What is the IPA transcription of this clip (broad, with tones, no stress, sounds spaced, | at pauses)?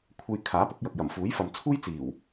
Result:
kʷʰ e˧ j kʰ aː˨˥ p ʊ˨˥ k̚ j ɐ˨ k̚ j ɐ˨˩ m f uː˨˥ j f ɐ˨ m t͡sʰ uː˥ j t͡s iː˨˩ w